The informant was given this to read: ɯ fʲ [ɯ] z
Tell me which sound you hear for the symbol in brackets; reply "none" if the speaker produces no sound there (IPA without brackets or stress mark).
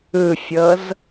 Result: ɤ